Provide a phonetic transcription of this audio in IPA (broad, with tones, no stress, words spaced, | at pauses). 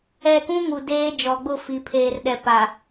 ɛ˦˨ kũ˦ŋu˨ deː˦ d͡ʒɔ˨ɡ͡bʊ˦˨ fi˨pʰeː˨rɗɛ˨ pa˨